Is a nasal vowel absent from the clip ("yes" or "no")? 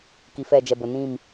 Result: no